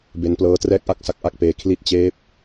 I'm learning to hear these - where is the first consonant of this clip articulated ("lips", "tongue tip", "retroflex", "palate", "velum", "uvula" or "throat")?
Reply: lips